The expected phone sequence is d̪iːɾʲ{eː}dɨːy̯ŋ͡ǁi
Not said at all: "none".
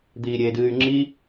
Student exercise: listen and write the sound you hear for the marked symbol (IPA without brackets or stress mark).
eː